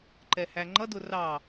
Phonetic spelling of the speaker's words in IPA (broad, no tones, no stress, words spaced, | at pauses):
ǃɛhæŋ͡ǃʌdʊ rɑ